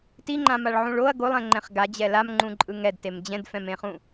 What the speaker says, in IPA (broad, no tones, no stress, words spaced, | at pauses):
tiŋ͡ǃãmaɭʕũɭ oɐ̯ ɡolˠɛ̃ŋ͡ǃɛ̃χ ɡad͡ʑɛ lamŋ͡ǃũǃʼɯ ŋɛdtem d͡ʑɛ̃dfɛ̃mẽχũ